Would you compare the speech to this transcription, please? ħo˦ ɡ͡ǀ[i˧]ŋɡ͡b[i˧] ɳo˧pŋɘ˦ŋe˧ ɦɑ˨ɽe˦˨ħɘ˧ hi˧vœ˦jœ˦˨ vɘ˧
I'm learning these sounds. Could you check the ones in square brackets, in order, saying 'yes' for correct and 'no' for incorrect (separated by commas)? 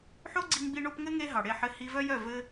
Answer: yes, yes